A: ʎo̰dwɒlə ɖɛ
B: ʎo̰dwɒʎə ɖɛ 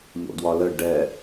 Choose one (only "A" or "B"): A